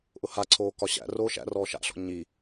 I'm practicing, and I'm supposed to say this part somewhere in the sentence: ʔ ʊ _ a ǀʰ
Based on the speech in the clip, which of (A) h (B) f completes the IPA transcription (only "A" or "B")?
A